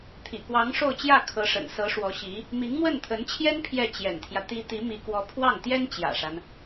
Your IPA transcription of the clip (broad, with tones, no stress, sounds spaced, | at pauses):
t̪ʰ ḭ˨˩ k w ɑ˧˥ ŋ ʂ o˥˧ ʊ̯ t͡ɕ j ä˥˩ kʰ ɤ˧˥ ʂ ə̰˨˩ n s ɤ˧˥ ʂ w ɔ˧˥ ɕ i˧˥ | m i˧˥ ŋ m w ə˥˩ n t̪ʰ ə˧˥ n t͡ɕʰ j ɛ˥ n pʰ j ɛ˥˩ t͡ɕ j ɛ̰˨˩ n t̪ʰ j ä˦ t̪ i˧˥ t̪ i˧˥ m i˧˥ k w ɔ˧˥ pʰ w ɑ˥˩ ŋ t̪ j ɛ˥ n t͡ɕ j ä̰˨˩ ʂ a˦ n